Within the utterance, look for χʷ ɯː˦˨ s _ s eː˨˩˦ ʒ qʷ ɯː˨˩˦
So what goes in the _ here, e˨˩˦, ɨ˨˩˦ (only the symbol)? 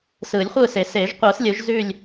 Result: e˨˩˦